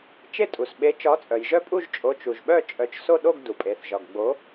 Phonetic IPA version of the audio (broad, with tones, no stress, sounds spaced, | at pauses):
t͡ʃ e˥˧ tʼ u˩ s ɓ e˨˥ t͡ʃ ɒ˨˥ t͡sʼ œ˩ j ʒ œ˥˧ pʼ u˥˧ ʒ t͡ʃʼ o˨˥ t͡ʃ u˩ ʒ ɓ œ˥˧ t͡ʃʼ œ˨˥ t͡ʃ s o˥˧ ɗ o˥˧ ɡ d u˩ pʼ e˩˧ θ ʒ ɒ˩ ɡ ɡ͡b o˨˥